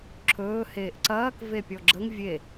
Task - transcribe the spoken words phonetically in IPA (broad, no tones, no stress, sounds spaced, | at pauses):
ǁʰ ɵː h eː ʔ ǀ ɐː k v e pʲ ɔ ɡ͡ǁ ə ŋ vʲ e